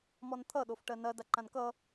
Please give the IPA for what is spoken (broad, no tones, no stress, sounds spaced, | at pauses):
m ɔ n t̪ʰ ʌ ɗ o f ʈ ɜ n ɐ d a ǃ ã n k ʌ